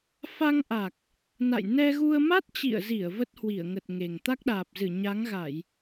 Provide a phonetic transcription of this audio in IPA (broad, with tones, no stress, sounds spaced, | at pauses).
f a˧ ŋ ʔ a˨˩ k̚ | n a̰˧˨ j n ɛ˧ ɣ u˧ ə̯ m a˦˥ t̚ t͡ɕ ḭ˧˨ ə̯ z i˧˩ ə̯ v ə˦˥ t̚ h w i˧˩ ə̯ ŋ ə˨˩ t̚ ŋ e˨˩ ŋ t̪ a˦˥ k̚ ɗ aː˨˩ p̚ z ɨ˧˩ ɲ a˨˦ ŋ ɣ a˧˩˨ j